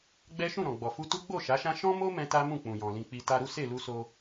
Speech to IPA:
ɡ͡b ɛ˦ ʃ ũ˦˨ ɾ ɔ̃˨ ɡ͡b ɔ˨ f u˧ t u˦ ɡ͡b o˦˨ ʃ a˨˦ ʃ ã˦ ʃ ɔ̃˦ m o˦ m ɛ̃˧ t a˦ m ũ˦˨ k͡p ũ˨ j ɔ̃˨ l ĩ˧ k͡p i˧ t a˧ ɾ u˦ s e˦˨ l u˧ s o˧

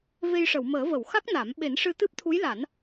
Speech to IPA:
v e˧ j ʂ ə˨˩˨ w m əː˨˩˦ v ə˨˩˨ w x a˦˥ k̚ n a˨˩˦ m ɓ e˨˩˦ n ʂ ɨ˧ t̪ ɨ˦˥ p̚ t̪ʰ u˧˥ j l a˨˩˦ n

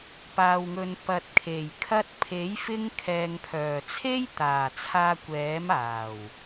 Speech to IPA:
p aː˨ w ŋ ɵ˨ n p ɐ˨ t̚ kʰ e˨˩ j kʰ ɐ˧ t̚ pʰ e˨˥ j f ɪ˧ ŋ kʰ ɛː˨ ŋ pʰ œː˨˩ t͡sʰ e˥ j t̪ aː˨˩ t͡sʰ aː˧ kʷ ɛː˨˥ m aː˨˩ w

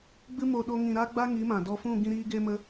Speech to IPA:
ɡ͡b ɨ˧ m o˨ ɗ o˧ ŋ ĩ˨ ɾ a˦ ɡ͡b a˦ ŋ i˨˦ m ã˨ d ɔ˧ f ũ˦˨ ɡ ĩ˧ ɾ iː˧ ɡ e˧ m ə˧

